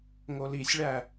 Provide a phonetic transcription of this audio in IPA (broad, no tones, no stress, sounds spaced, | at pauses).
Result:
ŋ o l i sʲ ɭ æ